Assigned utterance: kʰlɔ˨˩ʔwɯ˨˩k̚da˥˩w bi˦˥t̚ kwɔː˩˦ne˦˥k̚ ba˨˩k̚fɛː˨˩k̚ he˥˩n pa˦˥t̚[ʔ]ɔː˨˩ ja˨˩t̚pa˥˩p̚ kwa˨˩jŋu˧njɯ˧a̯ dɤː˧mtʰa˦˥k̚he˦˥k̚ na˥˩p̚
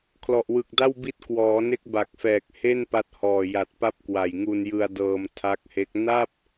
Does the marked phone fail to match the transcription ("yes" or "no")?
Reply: yes